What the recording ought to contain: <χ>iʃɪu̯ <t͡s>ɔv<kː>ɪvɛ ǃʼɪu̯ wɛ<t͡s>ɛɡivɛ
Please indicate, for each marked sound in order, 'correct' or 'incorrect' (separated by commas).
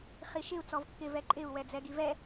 correct, correct, correct, incorrect